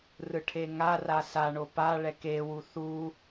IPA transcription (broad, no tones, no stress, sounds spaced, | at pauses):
r ɯ ʈʰ e ŋ a r a s a ɳ o p a ɭ ɛ k e w u θ u